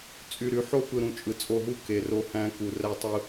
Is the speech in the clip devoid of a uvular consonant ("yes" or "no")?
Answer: yes